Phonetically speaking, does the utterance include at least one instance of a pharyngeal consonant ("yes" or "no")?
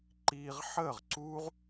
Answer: yes